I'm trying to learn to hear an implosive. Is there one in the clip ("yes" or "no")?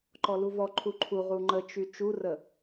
no